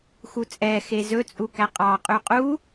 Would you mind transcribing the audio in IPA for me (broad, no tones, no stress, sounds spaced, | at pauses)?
x u t͡sʼ ɛ x e z ɵ t͡sʼ u k æ qʼ ɑ qʼ ʉ qʼ u